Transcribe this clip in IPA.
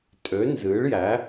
tʼø˨˥nzɨ˨˥ɭjæ˨˥

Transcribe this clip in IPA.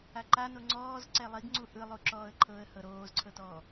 aǃano ŋ͡ǀɔːz ǀɛlˠiɡŋ͡ǀu ʔɯlˠu ǁɔːə̯ǃʰɤə̯ hɤɾoːzǀʰɤtɔː

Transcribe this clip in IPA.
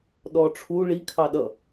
ɗɔʈ͡ʂʰu ɭi kʰɑɗʌ

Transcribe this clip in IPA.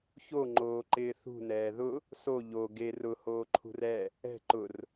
çoŋ͡ǃoːǃɪː θṳnɛː ðʊ | so ʎo ɡer ʊhoːǃʰṳr ɛ | ɛ̤ ǃʊr

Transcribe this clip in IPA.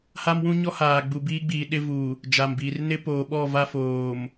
ha˦mwũ˦ɲɔ˦ haː˨ɡ͡bu˨biː˦ɡ͡biː˨ ɗɪ˦vu˨ | d͡ʒa˨mbiː˨r nɪ˦poː˨ɓɔ˦˨va˦ foː˨m

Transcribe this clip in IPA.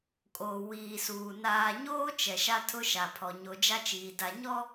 kʼoː˨wiː˨suː˨ naː˨ɲoː˦ t͡ʃɛ˨ʃa˦ tʰʊ˦ ʃa˨pʰɔ˨ ɲo˨d͡ʒa˦t͡ʃiː˨ da˨ɲɔ˦

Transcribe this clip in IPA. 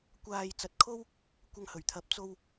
kʷaː˨j t͡sɐ˨t̚kʰo˥w | kʷɐ˧ŋhɵ˨˩ɥt̪ʰɐ˨˥p̚ t͡so˧w

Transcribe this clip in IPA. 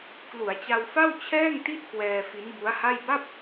klu˩˦a̯t͡ɕa˧wfa˥˩w t͡ɕʰɛː˥˩ŋti˥˩t̚ kwɛː˧fi˦˥nbu˦˥a̯ha˥˩j ba˥˩p̚

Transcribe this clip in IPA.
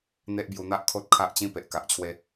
n̪e˦ʔbju˧n̪a˦ʔkʰo˦t̚ kʰa˦ʔt͡ɕĩ˦ pe˨ʔka˨ʔt͡ɕʰwe˧

